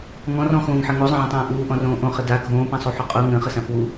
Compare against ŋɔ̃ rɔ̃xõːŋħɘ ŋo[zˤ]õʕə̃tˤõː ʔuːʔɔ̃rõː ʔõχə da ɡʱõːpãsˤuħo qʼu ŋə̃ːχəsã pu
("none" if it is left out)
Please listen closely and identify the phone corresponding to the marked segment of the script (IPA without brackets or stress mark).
zˤ